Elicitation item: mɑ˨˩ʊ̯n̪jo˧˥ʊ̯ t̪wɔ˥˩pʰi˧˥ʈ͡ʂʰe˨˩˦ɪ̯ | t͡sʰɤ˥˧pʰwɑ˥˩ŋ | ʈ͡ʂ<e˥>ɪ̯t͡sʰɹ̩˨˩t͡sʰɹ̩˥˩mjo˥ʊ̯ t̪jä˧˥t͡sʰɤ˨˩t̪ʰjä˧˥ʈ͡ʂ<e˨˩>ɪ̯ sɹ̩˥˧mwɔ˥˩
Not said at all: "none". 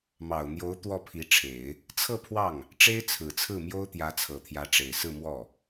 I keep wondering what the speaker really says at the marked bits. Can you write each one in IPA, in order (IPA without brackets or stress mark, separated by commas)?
e˥, e˨˩